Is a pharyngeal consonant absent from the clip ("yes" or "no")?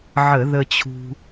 no